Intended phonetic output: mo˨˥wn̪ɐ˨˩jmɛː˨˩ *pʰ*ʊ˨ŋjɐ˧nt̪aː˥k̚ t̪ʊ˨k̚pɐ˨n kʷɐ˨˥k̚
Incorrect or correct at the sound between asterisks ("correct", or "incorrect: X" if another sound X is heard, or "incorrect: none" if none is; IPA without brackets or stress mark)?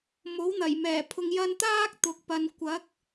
correct